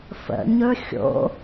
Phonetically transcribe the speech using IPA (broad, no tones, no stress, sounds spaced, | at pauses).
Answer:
f ə̰ ɲ ɵ xʲ o̰